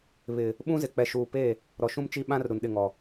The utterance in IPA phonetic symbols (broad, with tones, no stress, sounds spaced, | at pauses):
β ɪ˨ | ɓ ũ˦ z ɪ˨ k͡p ɛ˨ ʃ uː˨ p e˦˨ | ɾ ɔ˨ ʃ ũ˦ m t͡ʃ i˦ ɓ ã˦ r ɾ u˨ n ɗ ɪ˦˨ ŋ ɔ˨